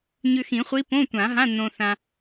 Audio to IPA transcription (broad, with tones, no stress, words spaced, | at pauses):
ɲʏ˧xĩ˨˩˦χʷi˧˥ põ˧˥˧tʷã˨˩˦ɦã˧˥˧ nõ˧θã˧